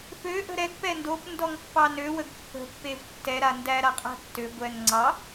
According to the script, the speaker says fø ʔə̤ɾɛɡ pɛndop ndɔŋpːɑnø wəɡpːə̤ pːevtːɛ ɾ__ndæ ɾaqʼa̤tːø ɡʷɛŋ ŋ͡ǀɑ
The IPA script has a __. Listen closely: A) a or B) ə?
A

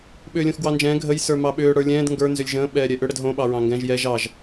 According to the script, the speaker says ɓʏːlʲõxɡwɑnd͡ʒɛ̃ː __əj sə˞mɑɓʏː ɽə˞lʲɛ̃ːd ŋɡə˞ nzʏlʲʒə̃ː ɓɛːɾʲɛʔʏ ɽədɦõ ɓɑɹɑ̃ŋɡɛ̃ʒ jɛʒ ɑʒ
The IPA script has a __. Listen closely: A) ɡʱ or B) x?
A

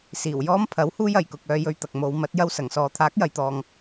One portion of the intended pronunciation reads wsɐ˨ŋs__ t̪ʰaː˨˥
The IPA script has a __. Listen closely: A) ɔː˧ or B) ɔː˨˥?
A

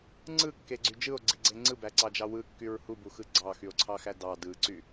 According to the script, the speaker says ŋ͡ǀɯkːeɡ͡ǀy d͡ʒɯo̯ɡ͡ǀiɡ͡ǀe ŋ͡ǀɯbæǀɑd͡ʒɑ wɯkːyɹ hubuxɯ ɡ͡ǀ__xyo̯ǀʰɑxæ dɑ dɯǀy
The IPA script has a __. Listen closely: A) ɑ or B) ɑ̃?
A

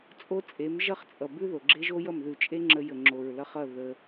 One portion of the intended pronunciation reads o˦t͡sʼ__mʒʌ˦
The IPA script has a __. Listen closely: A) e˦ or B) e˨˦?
B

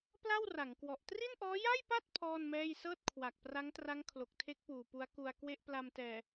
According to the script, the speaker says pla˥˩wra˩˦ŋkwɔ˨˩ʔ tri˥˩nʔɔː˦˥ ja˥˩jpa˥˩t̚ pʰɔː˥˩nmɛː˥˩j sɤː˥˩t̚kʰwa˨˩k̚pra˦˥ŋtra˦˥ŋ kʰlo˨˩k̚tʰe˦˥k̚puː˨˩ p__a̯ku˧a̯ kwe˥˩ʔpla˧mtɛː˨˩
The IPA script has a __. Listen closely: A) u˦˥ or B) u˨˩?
A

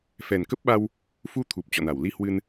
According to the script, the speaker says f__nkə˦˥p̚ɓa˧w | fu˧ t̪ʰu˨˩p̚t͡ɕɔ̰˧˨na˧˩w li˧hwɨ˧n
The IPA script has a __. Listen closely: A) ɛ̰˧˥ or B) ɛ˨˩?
B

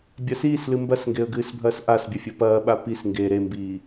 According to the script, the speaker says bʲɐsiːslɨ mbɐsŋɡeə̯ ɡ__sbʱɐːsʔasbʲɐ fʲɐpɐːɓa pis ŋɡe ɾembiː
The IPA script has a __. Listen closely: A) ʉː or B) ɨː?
B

